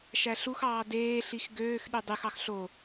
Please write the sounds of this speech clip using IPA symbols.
ʃæɬuxɑː deːɬix ɡøːx ɗydˤyxɑx ɬo

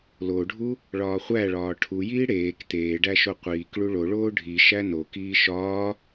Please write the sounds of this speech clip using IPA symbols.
loɖʱu | ɭɒːχʷæɭɒː ʈʰujiː ɽeːk t̪eːɖæ ʃoqʷiːkɭu ɭoɭoː ɖʱi ʃænokiː ʃɒː

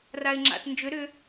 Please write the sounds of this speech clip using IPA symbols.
raɪ̯ŋ͡ǁa̰t nd͡ʒʏ ɾʏ

